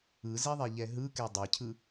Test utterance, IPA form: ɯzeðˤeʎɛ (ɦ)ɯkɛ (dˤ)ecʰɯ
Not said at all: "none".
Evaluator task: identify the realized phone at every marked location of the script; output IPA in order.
ɦ, dˤ

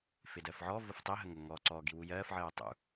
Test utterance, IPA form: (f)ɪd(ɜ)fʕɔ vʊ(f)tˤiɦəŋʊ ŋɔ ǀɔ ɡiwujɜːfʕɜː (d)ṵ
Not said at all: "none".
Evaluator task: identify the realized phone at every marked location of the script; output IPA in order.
f, ɜ, f, tˤ

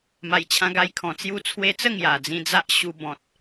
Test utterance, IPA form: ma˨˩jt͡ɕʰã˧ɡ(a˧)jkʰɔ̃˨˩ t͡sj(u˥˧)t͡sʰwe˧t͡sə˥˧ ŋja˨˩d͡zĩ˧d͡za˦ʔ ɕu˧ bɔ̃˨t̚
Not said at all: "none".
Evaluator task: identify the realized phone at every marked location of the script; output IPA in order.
a˧, u˧

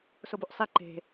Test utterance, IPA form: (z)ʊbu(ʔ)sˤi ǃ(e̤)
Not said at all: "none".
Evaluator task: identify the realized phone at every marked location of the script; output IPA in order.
s, ʔ, e̤

